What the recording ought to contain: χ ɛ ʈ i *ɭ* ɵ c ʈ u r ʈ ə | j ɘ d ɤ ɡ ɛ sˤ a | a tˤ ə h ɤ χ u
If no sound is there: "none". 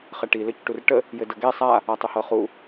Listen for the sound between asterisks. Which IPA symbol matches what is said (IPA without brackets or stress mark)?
l